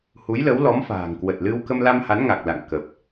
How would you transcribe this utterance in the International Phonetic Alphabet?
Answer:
hu˨˦jlə˨˦wlɔ˨˦m fa̤ː˨˩ŋkwə˨˩t̚lɨ˧w kə˧mla˧m ha˨˦nŋa˨˩k̚ la̰˧˨ŋ kəː˨˩p̚

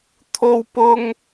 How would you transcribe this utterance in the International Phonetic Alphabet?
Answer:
t̪ʰo˥wpʊ˥ŋ

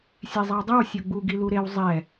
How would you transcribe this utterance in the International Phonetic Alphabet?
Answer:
sʲezˤʌwdˤɯw sʲoɡ͡bu ɡiluɾew zˤɛ

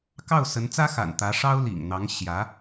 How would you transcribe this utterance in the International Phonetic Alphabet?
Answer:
kɑ˥˩ʊ̯sə˧˥nt͡sä˥xa̰˨˩n t̪ä˧˥ʂɑ˥ʊ̯lḭ˨˩ŋ n̪ɑ˧˥ŋɕjä˧˥

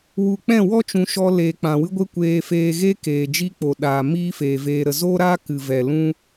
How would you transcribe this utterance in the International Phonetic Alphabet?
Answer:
wu˨k͡pɛ̃˦˨wɔ˦t͡ʃũ˨ ʃɔ˧ leː˨k͡pã˨wɨ˦ɡʷe˦ kʷeː˧feː˧ɣe˦ keː˨d͡ʒi˦k͡po˨ ɗaː˨ miː˦feː˨veː˧ ɾə˨zoː˦ɾaː˦ kɨ˨vɛ˨ lũ˦

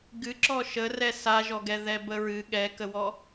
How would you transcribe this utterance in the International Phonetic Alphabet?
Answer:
ɡɨǁɔ ʃərɛ saʒɔɡɛ ðɛbəɹɨ ɠɛkəwɔ

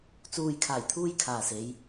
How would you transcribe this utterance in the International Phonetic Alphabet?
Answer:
t͡suː˨jkʰaː˨˩jt̪ʰuː˧j kʰaː˨se˨˧j

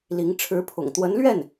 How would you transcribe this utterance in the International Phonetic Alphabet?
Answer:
li˧˥ŋ ʈ͡ʂʰɻ̩˧˥pʰʊ̰˨˩ŋt̪wə˧˥nlɥɛ˥˩n

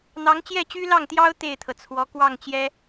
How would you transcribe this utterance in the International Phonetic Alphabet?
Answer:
n̪ɑ˧˥ŋ t͡ɕjɛ˥˩t͡ɕy˥lɑ˥˩ŋt̪jɑ˥ʊ̯ t̪e˥˩ɪ̯t̪ʰɤ˩t͡sʰwɔ˧˥ kwɑ˥˩ŋt͡ɕjɛ˥

